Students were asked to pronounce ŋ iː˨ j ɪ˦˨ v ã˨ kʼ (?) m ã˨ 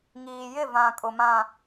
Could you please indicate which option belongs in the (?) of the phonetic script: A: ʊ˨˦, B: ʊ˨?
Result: B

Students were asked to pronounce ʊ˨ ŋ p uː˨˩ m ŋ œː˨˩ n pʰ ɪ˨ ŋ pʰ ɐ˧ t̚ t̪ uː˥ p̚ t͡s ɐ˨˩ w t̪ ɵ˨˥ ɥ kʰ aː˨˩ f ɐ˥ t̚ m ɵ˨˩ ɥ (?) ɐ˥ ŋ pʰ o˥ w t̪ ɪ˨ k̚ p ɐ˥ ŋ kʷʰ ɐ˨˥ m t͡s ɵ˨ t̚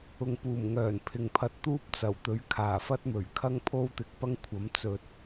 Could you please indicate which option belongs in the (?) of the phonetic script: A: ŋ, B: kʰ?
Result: B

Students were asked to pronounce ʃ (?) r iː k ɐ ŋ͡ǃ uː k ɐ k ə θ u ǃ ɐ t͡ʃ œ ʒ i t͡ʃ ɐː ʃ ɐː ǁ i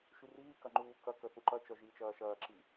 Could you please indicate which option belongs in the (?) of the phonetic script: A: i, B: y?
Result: B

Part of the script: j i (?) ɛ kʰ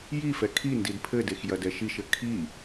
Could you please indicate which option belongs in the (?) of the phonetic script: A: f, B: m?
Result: A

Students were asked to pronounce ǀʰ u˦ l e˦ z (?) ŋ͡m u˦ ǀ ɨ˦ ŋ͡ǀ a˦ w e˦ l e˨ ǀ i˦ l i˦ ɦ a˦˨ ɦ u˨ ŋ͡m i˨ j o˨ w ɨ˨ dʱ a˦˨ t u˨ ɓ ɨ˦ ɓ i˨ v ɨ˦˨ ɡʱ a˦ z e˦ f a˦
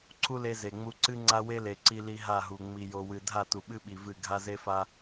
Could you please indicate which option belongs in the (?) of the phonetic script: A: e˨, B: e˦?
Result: A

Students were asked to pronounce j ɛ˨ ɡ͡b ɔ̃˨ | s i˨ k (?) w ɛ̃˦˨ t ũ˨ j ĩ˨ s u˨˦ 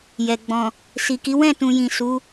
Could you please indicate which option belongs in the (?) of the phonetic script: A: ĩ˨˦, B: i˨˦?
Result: B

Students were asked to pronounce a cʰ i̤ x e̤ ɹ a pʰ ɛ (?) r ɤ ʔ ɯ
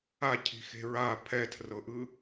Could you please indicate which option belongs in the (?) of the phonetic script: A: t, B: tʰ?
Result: B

